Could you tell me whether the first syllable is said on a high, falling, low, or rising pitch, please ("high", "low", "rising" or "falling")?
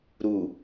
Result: low